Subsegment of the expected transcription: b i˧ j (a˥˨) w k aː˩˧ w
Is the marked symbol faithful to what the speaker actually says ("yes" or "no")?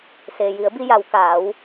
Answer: no